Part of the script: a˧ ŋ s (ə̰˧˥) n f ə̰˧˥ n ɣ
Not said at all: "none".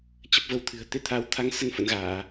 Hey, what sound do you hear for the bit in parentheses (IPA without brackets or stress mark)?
ə˧